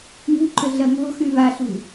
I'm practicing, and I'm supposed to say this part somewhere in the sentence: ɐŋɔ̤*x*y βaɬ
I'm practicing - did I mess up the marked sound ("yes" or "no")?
no